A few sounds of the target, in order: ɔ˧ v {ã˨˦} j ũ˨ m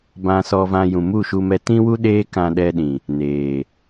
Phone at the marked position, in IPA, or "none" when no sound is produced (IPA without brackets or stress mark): ã˧